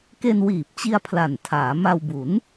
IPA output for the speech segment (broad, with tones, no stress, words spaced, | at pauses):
ke˧nwiː˨˩p̚t͡ɕi˧a̯ pʰla˨˩n tʰaː˩˦ma˧wbu˩˦n